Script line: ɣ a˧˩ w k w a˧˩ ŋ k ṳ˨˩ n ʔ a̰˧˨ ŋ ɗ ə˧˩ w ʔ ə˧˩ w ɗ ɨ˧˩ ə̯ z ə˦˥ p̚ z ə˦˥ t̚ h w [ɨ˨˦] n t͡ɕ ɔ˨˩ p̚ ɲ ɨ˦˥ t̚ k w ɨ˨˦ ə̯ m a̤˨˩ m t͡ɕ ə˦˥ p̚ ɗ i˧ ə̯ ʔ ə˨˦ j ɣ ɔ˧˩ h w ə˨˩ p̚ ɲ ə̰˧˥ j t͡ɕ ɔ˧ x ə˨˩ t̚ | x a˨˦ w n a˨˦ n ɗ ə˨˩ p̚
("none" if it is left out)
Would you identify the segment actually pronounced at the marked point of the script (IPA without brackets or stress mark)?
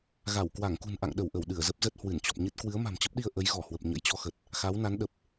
ɨ˧˩